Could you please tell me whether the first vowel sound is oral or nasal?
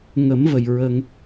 oral